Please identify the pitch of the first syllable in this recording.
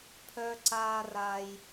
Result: high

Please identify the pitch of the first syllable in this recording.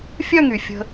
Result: falling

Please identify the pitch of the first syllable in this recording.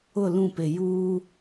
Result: falling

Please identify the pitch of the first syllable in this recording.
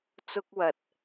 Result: high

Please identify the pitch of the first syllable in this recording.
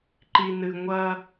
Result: low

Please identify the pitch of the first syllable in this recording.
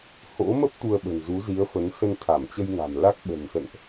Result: rising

